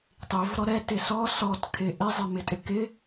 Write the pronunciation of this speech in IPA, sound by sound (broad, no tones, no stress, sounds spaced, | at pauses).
tˤ i v ɾ ɔ ɾ ɛ t ɪ s ɔ s ɔ t kʰ ɪ ʔ ɪ zˤ ɪ m ɪ tʼ ɪ k ɪ